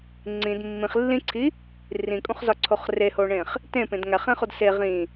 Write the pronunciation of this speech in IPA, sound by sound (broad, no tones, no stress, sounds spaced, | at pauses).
ŋ͡ǀ ĩ d mː ĩ χ lː ĩ ǀʰ i | r ĩ kʼ ũ χ z ɒ ǀʰ o χ r e h o ɳ ẽ χ | t ẽ p ẽ d ŋ æ χ ẽ χ o d s e ʁ ĩ